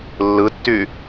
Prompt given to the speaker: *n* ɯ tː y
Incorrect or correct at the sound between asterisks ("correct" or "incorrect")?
incorrect